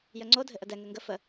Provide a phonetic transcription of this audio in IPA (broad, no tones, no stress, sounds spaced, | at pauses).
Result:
j ə ŋ͡ǀ o dʱ ɘ ʔ ə d ɛ ŋ ɘ ŋ ɡ ə f ə